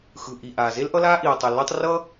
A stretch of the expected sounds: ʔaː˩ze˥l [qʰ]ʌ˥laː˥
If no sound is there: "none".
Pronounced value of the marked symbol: ʔ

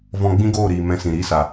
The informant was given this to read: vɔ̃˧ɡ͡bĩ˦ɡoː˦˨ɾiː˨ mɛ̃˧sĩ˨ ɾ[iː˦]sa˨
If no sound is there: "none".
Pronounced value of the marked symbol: iː˧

